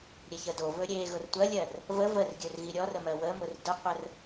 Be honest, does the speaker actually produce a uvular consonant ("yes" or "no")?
yes